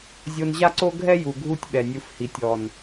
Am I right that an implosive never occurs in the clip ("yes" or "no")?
no